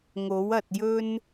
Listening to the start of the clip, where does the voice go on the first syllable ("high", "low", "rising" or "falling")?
rising